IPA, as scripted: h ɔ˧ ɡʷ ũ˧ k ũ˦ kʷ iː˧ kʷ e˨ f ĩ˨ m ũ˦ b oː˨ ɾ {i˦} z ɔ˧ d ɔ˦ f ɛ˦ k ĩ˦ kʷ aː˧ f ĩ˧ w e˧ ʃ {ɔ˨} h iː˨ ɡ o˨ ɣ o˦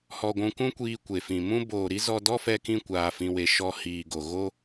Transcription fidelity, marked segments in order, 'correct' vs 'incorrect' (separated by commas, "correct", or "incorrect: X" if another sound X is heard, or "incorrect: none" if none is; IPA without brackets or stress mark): correct, incorrect: ɔ˧